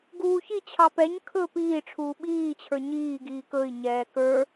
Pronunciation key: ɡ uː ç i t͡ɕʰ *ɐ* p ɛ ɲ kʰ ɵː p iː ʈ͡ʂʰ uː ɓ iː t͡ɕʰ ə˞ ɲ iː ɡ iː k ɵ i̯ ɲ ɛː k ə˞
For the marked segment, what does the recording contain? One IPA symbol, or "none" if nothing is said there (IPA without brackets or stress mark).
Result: ɑ